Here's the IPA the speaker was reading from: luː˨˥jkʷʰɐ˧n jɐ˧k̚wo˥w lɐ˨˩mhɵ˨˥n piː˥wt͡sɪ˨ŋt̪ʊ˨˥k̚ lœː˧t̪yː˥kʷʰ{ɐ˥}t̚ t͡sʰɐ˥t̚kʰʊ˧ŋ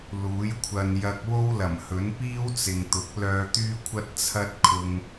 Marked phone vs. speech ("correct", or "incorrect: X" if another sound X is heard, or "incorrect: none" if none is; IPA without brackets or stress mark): correct